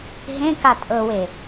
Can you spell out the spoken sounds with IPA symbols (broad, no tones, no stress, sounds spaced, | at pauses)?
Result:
ɦ ẽ k a tʼ ɤ w e